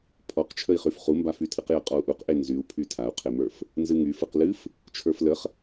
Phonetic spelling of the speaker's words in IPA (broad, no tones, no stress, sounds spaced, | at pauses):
pʰ ɔ q t͡ʃʰ ə i̯ χ y f χ u m b a f y tʰ ɨ q j ə qʼ ɔ u̯ ʔ u q ʔ e n z y u̯ pʰ y tʰ a u̯ qʰ e m ə˞ f | n z ɨ ŋ y f ɨ q l ɨ f | t͡ʃʰ ə˞ f l ə χ